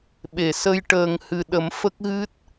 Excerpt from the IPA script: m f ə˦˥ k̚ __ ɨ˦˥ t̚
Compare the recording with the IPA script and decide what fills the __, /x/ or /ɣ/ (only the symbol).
ɣ